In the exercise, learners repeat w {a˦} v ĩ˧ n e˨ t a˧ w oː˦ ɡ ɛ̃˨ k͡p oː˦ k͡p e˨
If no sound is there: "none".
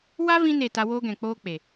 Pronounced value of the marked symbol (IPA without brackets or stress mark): a˦